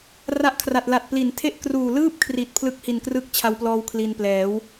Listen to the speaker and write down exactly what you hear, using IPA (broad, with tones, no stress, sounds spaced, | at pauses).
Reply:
r a˦˥ ʔ kʰ r a˨˩ t̚ l a˨˩ t̚ p l i˩˦ n tʰ e˥˩ ʔ k r uː˨˩ l ɯː˥˩ p̚ kʰ r i˨˩ t̚ pʰ l ɯ˦˥ k̚ h i˨˩ n k r ɯ˦˥ k̚ t͡ɕʰ a˧ w p l ɔː˧ w kʰ l i˧ n p l ɛː˩˦ w